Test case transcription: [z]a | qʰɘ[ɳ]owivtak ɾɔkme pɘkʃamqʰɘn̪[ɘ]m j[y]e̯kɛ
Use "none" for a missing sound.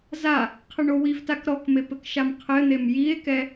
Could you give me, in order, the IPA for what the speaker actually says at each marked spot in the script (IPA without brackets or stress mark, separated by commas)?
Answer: z, ɳ, e, i